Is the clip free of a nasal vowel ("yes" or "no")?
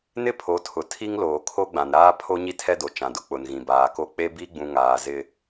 no